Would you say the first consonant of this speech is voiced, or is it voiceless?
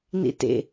voiced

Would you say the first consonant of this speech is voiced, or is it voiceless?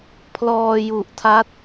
voiceless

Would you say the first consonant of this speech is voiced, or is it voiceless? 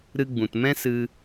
voiced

